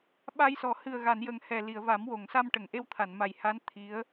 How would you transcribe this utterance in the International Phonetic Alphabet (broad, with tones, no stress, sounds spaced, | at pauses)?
ɓ a˧ j s ɔ˨˩˨ h ɨ˨˩ ə̯ ɣ a˨˩˨ n j ə˨˩ ŋ h ɛ˨˩ l i˨˩˨ ə̯ v a˨˩˦ m w o˨˩˨ ŋ s a˧ m ʈ ə˨˩˨ ŋ ʔ e˧ w t̪ʰ a˨˩˨ n m a˨˩ j h a˧˥ n t̪ʰ i˧˥ ə̯